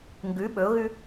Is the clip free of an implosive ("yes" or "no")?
no